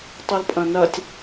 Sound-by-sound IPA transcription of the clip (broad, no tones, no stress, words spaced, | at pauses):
tˤulpʼɐ̃nɐtʲ